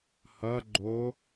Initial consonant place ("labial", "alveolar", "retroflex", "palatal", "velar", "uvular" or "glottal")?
glottal